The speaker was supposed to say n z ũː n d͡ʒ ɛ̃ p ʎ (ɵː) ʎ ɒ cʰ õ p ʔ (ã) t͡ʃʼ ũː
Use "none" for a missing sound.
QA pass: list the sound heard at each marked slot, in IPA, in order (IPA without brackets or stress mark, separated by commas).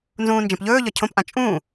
ɵː, ã